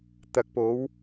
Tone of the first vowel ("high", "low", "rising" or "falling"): rising